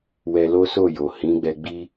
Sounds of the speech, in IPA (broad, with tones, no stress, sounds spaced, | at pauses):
w ɛ˧ l o˦ s o˦˨ j o˨ h ĩ˨˦ ɡ͡b ɛ˧ ɡ͡b i˦